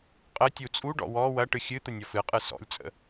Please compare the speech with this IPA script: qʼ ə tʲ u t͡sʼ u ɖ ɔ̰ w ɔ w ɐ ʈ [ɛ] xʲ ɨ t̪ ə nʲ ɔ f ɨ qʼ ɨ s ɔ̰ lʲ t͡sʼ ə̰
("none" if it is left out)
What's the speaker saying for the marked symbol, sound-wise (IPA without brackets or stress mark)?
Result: ɨ